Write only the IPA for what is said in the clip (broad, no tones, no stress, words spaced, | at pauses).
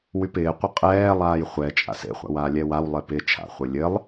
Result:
wypɪːqʷɘ qʼɛːlˠaːj χʷɛ t͡ʃʼa̰sḛχʷa̰ waːlʲɛwawlˠe pɪ t͡ʃʰa̰χʷɘ lʲɘlˠ